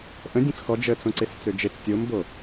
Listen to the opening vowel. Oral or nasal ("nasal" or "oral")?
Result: nasal